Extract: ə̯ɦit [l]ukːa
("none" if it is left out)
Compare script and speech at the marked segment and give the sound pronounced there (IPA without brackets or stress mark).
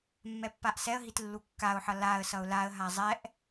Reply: lː